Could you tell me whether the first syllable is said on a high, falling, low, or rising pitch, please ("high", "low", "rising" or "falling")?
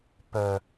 low